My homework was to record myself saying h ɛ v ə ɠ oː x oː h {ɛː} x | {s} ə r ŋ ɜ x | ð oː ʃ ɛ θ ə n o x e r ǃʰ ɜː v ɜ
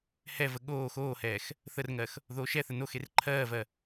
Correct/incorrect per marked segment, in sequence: correct, incorrect: θ

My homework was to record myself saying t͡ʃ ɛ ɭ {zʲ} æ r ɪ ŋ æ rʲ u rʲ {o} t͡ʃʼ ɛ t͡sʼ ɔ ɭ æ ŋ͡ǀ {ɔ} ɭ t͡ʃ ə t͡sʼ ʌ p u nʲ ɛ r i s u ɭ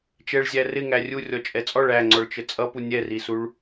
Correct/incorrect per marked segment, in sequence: correct, incorrect: ɔ, correct

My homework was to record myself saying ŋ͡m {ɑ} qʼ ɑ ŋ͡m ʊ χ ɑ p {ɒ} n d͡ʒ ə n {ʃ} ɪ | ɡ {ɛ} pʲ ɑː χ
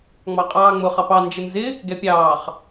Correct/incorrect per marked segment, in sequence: correct, incorrect: ɑ, incorrect: z, correct

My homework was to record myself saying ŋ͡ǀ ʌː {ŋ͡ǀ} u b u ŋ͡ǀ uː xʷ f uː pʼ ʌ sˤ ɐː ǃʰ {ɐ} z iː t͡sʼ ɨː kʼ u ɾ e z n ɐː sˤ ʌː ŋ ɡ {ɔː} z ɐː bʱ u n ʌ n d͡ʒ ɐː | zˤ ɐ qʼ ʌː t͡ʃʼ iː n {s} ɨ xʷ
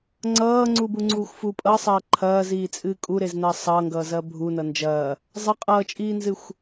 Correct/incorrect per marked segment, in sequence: correct, incorrect: ɐː, incorrect: ʌː, incorrect: z

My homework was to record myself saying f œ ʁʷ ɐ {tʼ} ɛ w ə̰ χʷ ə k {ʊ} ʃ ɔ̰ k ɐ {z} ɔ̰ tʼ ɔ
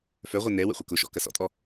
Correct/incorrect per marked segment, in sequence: incorrect: n, correct, incorrect: s

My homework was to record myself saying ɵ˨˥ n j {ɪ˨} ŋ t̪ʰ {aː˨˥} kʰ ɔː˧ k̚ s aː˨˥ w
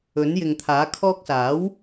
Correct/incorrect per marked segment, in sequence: correct, correct

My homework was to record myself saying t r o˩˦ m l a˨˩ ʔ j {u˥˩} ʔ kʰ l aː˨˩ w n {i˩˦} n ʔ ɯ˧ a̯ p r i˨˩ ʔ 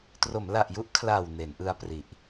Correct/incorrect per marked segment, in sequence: correct, incorrect: e˩˦

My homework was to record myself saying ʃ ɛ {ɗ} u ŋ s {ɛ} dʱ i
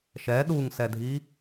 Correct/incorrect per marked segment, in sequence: correct, correct

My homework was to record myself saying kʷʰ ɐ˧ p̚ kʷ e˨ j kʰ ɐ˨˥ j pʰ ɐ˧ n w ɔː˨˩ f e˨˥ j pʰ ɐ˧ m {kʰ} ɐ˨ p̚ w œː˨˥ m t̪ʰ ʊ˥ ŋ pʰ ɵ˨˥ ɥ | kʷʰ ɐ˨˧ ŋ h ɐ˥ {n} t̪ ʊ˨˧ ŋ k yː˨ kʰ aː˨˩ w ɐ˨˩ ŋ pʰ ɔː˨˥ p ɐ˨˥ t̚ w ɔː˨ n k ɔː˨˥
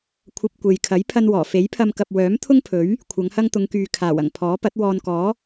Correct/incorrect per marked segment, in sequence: incorrect: k, incorrect: ŋ

